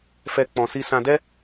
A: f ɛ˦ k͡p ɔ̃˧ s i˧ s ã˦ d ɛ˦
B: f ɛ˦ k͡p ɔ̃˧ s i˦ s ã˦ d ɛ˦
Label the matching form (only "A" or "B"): B